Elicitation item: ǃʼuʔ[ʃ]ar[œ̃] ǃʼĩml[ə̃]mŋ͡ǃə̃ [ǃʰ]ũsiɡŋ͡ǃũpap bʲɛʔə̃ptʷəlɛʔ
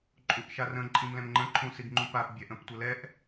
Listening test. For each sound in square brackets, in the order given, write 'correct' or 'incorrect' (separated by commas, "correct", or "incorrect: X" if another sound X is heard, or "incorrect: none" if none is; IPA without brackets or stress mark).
correct, incorrect: ə̃, incorrect: ɛ̃, correct